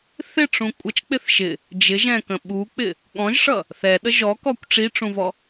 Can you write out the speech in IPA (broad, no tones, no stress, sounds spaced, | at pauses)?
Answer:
θ ɪ ʈ͡ʂ ũ kʷʼ ʌ t͡ʃ k͡p ɪ θ ʃ ɪ | d͡ʒ ɪ ʒ ɛ̃ k ə̃ ɓ u k͡p ɪ | ɠ ɔ̃ ʒ ʂ ʌ | θ ɛ ɗ ə ʒ ɔ k ɔ kʷ ʈ͡ʂ i ʈ͡ʂ ũ v ɔ